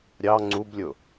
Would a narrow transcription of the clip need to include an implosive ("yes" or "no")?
no